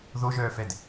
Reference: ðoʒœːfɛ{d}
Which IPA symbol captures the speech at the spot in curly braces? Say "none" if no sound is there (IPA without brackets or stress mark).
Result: d